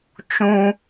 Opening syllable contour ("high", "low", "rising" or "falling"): high